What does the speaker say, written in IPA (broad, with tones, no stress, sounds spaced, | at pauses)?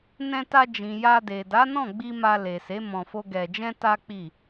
n ɛ̃˧ t a˧ d͡ʒ ĩ˨ j a˧ d e˨ d a˨˦ n ɔ̃˦˨ ɡ͡b i˧ m a˧ l e˨ s e˨˦ m ɔ̃˧ f o˦ ɡ ɛ˧ d͡ʒ ɛ̃˦ t a˦ k͡p i˦˨